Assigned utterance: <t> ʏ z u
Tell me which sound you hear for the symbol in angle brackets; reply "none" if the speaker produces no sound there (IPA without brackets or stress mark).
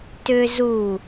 t